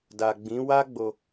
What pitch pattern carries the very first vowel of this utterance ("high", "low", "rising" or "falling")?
low